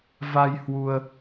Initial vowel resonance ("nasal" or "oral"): oral